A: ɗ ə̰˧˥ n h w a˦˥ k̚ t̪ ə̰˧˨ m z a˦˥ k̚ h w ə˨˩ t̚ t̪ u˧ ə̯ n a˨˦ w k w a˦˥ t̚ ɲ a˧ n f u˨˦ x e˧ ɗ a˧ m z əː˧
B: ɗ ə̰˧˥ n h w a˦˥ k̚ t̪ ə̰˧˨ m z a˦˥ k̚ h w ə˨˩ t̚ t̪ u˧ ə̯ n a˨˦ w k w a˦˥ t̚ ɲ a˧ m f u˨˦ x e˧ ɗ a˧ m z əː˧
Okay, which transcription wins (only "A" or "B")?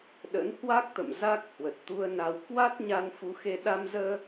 A